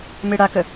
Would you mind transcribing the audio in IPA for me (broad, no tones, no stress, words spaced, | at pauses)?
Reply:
meɽakə